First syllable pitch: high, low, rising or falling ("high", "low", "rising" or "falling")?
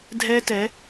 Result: high